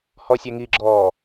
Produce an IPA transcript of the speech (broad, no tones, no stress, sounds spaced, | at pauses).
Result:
h ɔ sʲ ɛ ŋ i ɡ͡ǁ ɔː